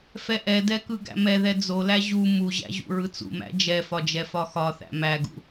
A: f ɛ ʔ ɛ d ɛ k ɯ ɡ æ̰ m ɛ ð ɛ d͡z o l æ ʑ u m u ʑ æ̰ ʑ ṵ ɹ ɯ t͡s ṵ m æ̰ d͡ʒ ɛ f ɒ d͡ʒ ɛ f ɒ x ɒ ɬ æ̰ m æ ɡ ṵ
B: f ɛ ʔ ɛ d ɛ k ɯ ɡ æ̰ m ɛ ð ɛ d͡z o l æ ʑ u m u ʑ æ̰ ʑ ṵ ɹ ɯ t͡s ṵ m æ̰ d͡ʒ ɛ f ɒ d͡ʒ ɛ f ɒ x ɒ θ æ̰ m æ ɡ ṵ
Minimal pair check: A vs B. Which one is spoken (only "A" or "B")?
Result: B